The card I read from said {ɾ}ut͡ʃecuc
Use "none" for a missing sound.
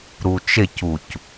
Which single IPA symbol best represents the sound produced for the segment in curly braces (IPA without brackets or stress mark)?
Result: ɾ